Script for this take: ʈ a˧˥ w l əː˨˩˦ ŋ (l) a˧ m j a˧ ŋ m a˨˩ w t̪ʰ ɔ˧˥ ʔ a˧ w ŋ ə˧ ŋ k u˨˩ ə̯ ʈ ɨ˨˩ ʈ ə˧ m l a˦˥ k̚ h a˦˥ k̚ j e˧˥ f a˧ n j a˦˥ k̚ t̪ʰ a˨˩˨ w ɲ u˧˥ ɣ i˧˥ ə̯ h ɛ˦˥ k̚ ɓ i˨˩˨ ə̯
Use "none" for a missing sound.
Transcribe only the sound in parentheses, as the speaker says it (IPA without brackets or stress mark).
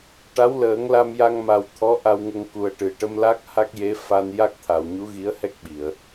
l